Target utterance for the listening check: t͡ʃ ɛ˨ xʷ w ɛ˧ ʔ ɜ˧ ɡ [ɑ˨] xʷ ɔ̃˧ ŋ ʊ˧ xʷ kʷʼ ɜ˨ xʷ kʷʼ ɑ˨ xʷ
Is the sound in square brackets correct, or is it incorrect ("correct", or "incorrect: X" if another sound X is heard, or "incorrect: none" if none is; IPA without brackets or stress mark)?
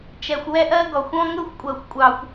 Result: incorrect: ɔ˨